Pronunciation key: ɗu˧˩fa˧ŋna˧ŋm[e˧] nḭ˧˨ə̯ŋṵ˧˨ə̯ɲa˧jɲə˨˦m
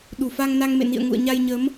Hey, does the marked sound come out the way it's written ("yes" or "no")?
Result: no